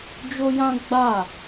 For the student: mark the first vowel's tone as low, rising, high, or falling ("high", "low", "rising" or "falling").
high